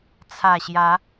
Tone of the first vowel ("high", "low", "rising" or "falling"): low